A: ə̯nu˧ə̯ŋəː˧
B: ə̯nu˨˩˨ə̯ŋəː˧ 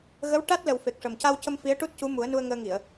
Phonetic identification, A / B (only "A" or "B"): A